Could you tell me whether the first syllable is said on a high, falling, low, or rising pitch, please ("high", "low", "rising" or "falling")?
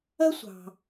high